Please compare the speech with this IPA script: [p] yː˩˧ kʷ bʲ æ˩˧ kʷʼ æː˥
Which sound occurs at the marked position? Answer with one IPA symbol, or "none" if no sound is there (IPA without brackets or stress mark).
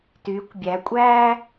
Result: t